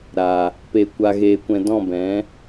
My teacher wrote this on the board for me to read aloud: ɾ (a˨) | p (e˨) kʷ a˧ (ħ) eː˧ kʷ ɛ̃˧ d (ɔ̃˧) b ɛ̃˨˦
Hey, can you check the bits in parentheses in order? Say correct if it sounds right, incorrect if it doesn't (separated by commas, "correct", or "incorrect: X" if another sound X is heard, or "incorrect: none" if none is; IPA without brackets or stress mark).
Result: correct, correct, incorrect: ɣ, incorrect: ɔ̃˦˨